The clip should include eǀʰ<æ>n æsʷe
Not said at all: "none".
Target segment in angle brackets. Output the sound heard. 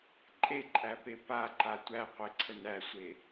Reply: ə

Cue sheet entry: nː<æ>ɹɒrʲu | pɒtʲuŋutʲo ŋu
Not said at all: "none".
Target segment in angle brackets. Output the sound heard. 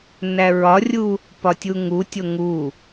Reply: æ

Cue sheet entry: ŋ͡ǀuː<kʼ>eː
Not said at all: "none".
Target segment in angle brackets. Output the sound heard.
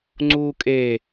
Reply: kʼ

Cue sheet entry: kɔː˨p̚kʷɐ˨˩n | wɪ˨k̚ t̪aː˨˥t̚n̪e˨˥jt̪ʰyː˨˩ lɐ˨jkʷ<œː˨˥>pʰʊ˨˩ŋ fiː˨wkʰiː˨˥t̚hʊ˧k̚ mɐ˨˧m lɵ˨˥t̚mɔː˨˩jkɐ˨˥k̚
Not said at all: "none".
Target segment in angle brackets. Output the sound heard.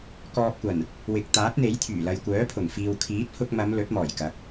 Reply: œː˨˥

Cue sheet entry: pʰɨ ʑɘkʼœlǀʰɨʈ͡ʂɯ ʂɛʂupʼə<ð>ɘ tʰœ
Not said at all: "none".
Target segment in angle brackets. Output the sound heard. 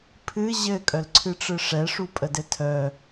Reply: d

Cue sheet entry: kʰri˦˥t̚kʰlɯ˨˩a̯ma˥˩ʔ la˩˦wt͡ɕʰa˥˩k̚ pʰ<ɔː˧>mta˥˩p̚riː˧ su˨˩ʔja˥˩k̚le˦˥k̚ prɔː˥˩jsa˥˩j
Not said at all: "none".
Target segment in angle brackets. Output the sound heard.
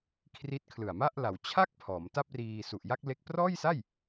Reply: ɔː˩˦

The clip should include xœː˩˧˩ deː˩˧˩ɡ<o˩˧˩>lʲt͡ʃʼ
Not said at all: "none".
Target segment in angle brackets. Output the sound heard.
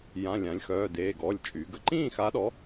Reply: ɔ˩˧˩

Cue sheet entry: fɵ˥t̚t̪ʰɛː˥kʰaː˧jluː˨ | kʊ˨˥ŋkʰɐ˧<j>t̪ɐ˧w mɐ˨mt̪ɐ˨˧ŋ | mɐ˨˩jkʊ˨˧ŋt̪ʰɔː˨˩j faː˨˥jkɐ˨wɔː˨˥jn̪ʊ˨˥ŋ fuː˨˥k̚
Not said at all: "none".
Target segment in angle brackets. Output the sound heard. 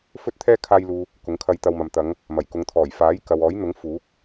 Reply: j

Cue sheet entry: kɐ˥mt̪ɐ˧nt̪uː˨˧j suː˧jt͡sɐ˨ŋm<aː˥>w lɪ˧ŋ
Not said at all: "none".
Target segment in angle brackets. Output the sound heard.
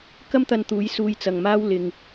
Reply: aː˥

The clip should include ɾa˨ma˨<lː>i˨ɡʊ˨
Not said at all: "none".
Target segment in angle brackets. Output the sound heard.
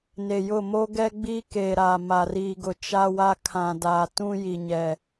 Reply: r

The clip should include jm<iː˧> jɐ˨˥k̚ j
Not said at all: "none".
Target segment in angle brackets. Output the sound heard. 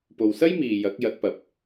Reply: iː˨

